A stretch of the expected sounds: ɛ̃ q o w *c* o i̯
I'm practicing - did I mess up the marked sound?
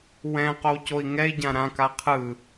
no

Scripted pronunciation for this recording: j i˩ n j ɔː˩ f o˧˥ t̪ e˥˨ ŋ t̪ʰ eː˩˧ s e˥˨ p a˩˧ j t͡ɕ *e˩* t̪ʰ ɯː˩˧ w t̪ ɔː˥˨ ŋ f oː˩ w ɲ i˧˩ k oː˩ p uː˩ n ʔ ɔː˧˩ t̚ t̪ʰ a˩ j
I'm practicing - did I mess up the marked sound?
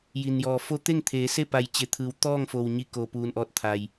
yes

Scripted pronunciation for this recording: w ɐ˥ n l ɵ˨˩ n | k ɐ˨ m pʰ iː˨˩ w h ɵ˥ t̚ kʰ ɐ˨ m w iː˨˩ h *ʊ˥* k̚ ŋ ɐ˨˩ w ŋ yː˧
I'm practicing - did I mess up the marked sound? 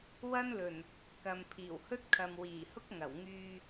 no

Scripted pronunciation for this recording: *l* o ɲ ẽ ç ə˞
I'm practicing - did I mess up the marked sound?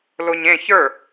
no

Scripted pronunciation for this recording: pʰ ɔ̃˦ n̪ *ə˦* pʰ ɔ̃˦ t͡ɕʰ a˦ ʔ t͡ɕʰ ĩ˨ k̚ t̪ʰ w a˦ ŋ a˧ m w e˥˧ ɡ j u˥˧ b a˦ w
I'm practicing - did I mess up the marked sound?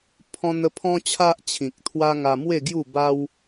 no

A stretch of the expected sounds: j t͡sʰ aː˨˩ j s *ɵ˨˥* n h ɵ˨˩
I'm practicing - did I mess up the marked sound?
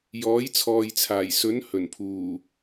no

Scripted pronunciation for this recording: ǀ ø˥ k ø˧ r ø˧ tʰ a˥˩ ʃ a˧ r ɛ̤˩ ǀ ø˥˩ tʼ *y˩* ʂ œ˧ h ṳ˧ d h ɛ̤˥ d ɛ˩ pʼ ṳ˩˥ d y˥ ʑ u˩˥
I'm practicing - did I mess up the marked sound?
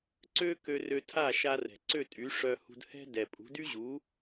yes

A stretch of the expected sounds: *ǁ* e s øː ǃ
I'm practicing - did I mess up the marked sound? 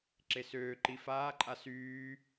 no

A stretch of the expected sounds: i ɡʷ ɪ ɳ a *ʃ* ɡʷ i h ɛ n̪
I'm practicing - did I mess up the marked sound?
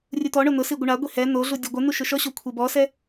yes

